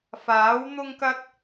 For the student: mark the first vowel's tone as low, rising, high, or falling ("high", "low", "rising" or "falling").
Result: rising